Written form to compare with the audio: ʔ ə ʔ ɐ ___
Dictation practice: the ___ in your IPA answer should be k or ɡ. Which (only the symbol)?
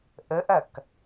k